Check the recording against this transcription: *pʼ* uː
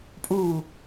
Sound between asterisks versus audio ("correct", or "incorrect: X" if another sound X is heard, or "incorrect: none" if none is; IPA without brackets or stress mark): correct